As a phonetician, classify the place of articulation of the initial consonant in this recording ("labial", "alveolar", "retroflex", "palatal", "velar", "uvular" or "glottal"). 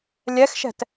alveolar